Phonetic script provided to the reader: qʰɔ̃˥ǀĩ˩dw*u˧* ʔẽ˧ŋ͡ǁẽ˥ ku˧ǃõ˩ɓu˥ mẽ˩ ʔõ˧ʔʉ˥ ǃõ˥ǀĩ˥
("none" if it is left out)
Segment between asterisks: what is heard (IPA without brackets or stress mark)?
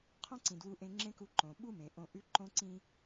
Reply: u˧